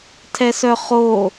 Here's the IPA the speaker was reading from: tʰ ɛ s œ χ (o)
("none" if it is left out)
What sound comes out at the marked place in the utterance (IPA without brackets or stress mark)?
o